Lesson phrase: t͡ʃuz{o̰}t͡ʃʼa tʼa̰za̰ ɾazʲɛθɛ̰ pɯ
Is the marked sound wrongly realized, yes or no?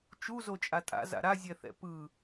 yes